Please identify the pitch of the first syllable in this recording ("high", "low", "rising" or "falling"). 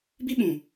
high